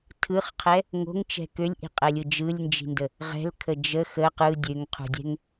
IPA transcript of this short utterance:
tʰɯχqʰɛ | ŋo̤ŋt͡ʃɛ̤ kølʲʔi̤qʼɛlʲɯ d͡ʒɯlʲnd͡ʒi̤ndə | ʁɛ̤lkʰə d͡ʒə xə qɯ dʲøŋqʰṳdʲɛ̤ŋ

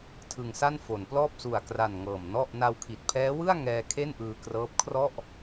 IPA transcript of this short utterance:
tʰɯ˧ŋsa˥˩nfo˩˦nplɔː˥˩p̚ su˨˩a̯kra˨˩n ŋɤː˨˩m nɔ˥˩ʔ na˧wkʰi˨˩t̚pʰɛː˦˥wɯ˥˩a̯ ŋɛː˧ kʰe˥˩nʔɯː˧krɤː˦˥p̚kʰrɔ˥˩ʔ

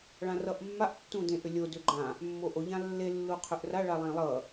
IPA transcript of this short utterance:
ɭãrʌʔmːaʔ tːũdẽʔʏlʲo dʏɡ͡ǃã | mːoʔo ʎãlːe lːuqʰʏʔra ɭalˠẽlˠʌ

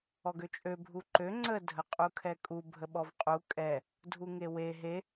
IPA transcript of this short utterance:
ɔɡøt͡ʃʼø bʱuǃø ŋ͡ǀə dʱəqʼukʰɛkʼu bʱəɓɔvqʼu kʼɛ | dʱuŋewe ɦe

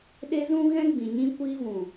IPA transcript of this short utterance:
ɗe˦zũ˦ɣɛ̃˦ ɡ͡bĩ˨ ɲĩ˦ kʷiː˧vũ˨

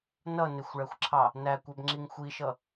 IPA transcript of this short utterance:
nʌ nɪxʷɭæxʷǁʰɑ | nækʷæbŋ͡ǁiŋ xʷiʃʌ

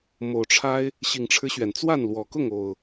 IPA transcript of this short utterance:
mo˨˩ʊ̯ʈ͡ʂʰa˦ɪ̯ | ɕi˨˩ŋʈ͡ʂʰɻ̩˦ɕɥɛ˩nt͡swa˥˨n lwɔ˨˩kʊ˥˨ŋ o˨˩ʊ̯

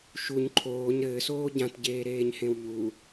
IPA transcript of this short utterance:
ʃuɲ ǃʰoːɲ ɾɘːsoː ɟãtɟeːɾeːɲhẽw ʎu

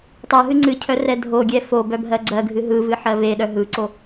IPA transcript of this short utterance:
tˤœɦɨ ŋ͡ǀɨcʰœ rɛdʱoɡʲɛ fo bœbʱɜɡ͡ǀɜɡʱɨ ɦɯvɨ ħɜveɗœ ɦɯǀo

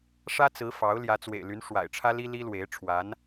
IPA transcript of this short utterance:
ʂä˥t͡sɹ̩˧˥ fɑ˧˥ʊ̯ ljä˧˥t͡swḛ˨˩ɪ̯ly˧˥n ʂwa̰˨˩ɪ̯ʈ͡ʂʰä˥li˥li˥ lwe˧˥ɪ̯ ʈ͡ʂʰwa˧˥n

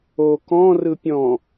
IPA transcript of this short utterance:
o kɔ̃ rɯpʲɔ̃

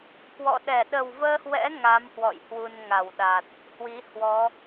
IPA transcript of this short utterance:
kwɔ̰˧˨ɗɛ˧˩ ɗə˨˩wvəː˧hwɛ̰˧˥ ŋa˨˦mhwɔ̰˧˨j hwu˧nŋa˧˩wɗa˨˩t̚ | hwi˨˦hwɔ˨˦

